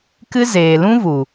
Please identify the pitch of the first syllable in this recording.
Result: high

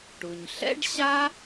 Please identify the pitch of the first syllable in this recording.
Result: low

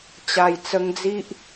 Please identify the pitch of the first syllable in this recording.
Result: low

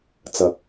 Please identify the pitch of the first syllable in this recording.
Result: low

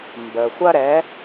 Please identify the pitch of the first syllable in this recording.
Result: low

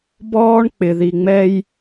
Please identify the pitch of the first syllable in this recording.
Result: high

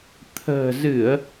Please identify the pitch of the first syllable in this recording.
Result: low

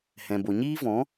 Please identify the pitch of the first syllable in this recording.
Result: low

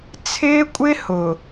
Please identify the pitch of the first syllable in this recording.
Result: high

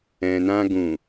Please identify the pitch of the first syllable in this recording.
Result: low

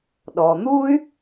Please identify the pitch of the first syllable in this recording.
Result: low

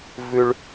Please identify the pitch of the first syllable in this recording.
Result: low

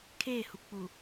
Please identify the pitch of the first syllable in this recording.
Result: falling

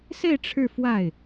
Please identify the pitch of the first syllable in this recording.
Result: falling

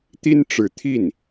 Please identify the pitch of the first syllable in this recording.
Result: high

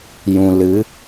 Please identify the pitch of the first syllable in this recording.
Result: low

